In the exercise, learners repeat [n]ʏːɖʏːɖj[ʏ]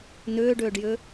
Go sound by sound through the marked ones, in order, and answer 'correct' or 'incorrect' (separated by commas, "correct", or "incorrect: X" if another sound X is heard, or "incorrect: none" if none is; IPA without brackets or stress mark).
correct, correct